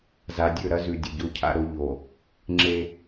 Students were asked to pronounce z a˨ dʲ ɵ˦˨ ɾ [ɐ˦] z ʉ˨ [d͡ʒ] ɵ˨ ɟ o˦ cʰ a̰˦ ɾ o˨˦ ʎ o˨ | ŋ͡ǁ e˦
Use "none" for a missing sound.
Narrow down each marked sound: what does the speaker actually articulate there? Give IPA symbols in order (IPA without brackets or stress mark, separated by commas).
ɐ˦, dʲ